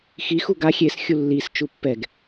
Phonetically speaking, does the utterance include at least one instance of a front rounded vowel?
no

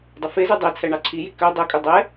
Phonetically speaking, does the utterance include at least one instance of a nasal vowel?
no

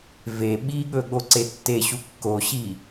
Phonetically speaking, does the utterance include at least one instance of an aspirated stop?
no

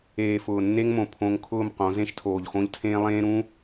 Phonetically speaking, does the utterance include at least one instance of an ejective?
no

